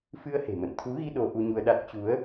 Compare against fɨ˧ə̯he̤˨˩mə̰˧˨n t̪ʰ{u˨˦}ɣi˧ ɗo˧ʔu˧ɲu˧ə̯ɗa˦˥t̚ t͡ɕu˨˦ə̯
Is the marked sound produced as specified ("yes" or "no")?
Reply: yes